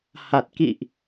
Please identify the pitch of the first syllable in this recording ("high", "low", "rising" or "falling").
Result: low